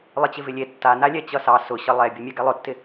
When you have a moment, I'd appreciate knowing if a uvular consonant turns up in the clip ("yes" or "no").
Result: no